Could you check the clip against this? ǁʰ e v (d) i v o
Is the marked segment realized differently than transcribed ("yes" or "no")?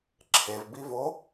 yes